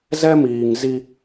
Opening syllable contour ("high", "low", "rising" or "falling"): high